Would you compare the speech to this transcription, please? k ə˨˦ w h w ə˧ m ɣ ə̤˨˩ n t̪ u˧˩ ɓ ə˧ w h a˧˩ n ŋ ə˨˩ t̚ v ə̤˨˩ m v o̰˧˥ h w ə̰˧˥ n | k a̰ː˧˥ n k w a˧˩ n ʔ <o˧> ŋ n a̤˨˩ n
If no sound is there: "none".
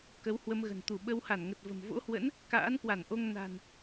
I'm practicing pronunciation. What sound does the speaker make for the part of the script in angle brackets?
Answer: o˧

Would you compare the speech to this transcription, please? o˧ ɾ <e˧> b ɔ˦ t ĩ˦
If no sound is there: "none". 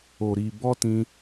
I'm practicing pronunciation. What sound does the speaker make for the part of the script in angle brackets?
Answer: i˧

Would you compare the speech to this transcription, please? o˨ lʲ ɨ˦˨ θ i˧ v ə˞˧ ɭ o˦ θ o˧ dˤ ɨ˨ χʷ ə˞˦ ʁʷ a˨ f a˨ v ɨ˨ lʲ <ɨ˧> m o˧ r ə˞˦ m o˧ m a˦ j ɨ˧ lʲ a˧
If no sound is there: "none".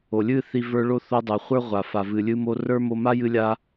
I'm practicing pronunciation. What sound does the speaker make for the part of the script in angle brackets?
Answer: ɨ˧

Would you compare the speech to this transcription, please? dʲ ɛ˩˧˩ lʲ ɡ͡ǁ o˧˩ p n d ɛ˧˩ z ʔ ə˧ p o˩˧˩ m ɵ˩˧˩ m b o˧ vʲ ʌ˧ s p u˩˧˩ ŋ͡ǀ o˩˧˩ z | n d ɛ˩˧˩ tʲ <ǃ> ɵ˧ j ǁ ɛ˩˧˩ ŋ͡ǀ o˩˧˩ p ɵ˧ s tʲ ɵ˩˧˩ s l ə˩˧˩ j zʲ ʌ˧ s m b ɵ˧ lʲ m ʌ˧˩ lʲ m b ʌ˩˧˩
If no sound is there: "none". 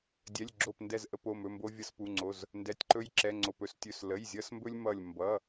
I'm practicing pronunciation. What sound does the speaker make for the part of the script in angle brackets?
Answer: ǃ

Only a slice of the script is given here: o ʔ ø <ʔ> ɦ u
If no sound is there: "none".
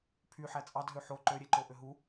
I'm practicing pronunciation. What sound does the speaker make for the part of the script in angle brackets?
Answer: none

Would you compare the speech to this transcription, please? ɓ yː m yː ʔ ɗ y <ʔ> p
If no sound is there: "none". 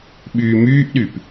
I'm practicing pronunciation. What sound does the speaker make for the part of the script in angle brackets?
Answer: none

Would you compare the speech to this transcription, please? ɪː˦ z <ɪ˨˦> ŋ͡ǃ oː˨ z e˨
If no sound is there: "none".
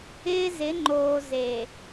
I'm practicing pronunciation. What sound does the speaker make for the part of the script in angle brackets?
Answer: ɪ˨˦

